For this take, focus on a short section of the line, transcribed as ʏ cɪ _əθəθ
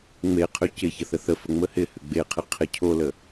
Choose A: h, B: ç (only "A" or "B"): B